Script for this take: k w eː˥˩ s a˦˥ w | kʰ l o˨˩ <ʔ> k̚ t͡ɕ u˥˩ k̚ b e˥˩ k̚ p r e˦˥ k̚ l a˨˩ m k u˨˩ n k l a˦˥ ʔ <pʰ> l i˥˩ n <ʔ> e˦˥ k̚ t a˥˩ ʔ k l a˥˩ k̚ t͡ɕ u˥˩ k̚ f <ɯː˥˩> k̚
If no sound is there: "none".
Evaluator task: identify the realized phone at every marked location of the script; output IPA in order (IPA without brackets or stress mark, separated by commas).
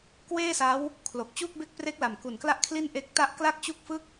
none, kʰ, ʔ, ɯ˥˩